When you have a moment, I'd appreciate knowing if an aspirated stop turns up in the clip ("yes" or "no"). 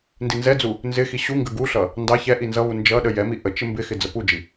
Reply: no